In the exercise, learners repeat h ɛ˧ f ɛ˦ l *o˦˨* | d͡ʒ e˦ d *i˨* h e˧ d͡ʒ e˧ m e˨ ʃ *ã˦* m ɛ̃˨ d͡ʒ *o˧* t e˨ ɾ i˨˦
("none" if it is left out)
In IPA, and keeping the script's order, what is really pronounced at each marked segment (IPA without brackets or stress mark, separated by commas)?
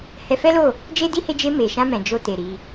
o˦˨, i˦, ã˧, o˧